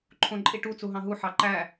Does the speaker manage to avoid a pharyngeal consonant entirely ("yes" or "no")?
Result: no